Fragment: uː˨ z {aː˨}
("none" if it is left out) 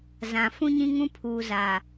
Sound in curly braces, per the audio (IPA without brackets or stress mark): aː˨